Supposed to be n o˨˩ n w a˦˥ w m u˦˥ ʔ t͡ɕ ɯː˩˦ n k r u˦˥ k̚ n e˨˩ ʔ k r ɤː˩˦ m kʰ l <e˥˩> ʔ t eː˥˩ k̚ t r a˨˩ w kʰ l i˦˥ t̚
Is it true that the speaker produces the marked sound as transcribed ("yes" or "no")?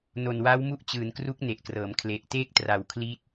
no